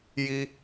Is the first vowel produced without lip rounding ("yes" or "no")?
yes